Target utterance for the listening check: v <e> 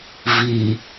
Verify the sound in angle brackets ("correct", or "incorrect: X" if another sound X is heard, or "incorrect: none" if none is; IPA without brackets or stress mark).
incorrect: i